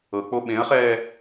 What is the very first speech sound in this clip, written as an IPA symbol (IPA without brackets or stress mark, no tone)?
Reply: ɤ